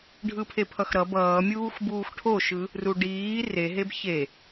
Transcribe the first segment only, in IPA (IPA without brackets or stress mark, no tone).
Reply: ɖʱ